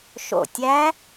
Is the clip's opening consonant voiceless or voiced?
voiceless